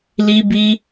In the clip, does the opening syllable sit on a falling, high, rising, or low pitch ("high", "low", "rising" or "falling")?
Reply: high